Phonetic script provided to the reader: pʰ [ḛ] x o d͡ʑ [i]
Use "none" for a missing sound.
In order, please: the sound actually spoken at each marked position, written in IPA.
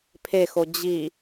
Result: e, i

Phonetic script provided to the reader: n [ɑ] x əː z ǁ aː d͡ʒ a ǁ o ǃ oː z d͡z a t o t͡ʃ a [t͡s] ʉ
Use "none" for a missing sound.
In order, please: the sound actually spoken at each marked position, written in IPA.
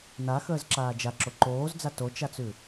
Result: a, t͡s

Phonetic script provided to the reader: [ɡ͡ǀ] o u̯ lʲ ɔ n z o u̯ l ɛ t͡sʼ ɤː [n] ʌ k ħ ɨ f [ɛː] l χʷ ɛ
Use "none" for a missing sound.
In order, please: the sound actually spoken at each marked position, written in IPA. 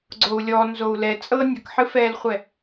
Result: ɡ͡ǀ, nʲ, ɛː

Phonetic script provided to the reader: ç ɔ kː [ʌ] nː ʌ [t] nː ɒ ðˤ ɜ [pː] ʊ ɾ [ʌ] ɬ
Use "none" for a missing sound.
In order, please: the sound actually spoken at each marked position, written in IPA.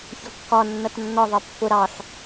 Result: ɒ, t, pː, ɑ

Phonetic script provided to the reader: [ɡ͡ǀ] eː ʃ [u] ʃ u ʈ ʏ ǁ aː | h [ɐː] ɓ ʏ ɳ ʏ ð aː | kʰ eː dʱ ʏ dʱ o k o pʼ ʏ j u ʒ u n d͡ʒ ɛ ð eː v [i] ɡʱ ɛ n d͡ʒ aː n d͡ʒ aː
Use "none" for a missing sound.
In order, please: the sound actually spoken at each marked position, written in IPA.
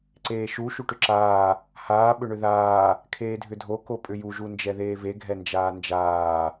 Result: ǀ, u, aː, e

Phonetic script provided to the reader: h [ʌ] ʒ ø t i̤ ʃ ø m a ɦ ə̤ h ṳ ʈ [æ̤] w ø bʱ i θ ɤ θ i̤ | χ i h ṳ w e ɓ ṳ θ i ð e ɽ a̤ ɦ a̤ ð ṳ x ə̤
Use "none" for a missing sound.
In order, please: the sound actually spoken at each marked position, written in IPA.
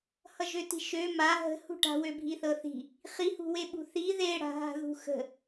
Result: ʌ, a̤

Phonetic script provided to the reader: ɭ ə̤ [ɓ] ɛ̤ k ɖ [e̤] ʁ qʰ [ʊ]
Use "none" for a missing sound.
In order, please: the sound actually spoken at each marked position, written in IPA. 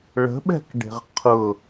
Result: ɓ, e̤, ʊ

